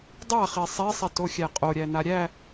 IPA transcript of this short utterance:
dˤaχi sˤisˤitoxʲæ qʼoɾʲæna ɾʲæ

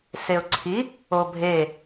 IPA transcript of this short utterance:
seʊ̯ǀʰi | obʱe

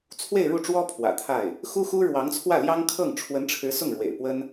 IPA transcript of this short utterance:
t͡sʰwe˥˧ɪ̯ɻu˥˩ʈ͡ʂwɔ˥ pʰwä̰˨˩t̪ʰa˥˩ɪ̯ | xu˥xu˥ɻwɑ˧˥ŋt͡sʰwä˥˩ ljɑ˥ŋkʰɤ˥˩ŋ ʈ͡ʂʰwə˧˥nʈ͡ʂʰɻ̩˧˥ sʊ˥˩ŋɻwḛ˨˩ɪ̯pwə˥n

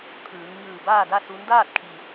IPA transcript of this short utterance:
t̪ʰɯː˩˧ŋ ɲɯː˧˩baː˥˨da˥˨ su˧˥n daː˥˨t̚kʰi˩

